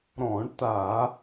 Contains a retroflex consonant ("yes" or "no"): yes